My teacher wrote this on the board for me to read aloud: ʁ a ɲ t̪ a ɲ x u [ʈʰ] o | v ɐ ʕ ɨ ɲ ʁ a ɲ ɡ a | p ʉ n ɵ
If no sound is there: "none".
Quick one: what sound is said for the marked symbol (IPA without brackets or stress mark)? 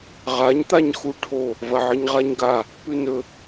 ʈʰ